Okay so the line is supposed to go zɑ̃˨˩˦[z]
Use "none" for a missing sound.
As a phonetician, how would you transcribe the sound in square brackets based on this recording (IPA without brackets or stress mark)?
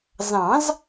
z